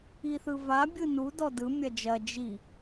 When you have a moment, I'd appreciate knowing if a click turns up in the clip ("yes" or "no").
no